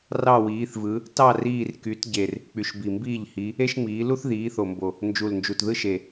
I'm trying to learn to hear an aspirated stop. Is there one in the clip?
no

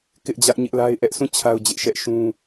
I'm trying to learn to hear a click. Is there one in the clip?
no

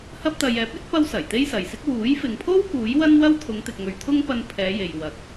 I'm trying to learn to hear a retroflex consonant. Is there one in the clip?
no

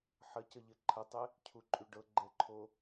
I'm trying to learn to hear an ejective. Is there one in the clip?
yes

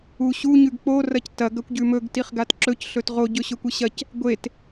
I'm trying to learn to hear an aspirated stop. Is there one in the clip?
no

